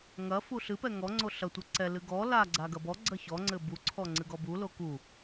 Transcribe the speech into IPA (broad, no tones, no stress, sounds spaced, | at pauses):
ŋ ɐ f u ɬ ɨ p ɛ ŋ ɔ ŋ͡ǀ o ɬ ɐ tʷ ɨ ǀ ɛ l ɨ ɡ ɔ l a ɡ͡ǀ a ɡ ɐ b ɔ ɡ͡ǀ ɐ ç ɔ ŋ͡ǀ ɘ b u ǀʰ ɔ ŋ͡ǀ ɨ ɡ ɔ b u l o k u